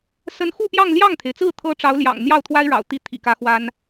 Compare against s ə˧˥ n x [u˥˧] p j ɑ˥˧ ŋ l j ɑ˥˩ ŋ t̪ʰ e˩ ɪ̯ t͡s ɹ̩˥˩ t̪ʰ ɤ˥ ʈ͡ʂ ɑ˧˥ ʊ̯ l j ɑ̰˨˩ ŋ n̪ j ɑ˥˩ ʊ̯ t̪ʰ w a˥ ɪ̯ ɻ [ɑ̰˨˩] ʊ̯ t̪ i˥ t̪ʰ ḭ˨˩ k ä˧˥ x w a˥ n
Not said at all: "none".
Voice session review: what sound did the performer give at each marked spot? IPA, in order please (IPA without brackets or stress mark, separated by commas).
u˥˧, ɑ̰˨˩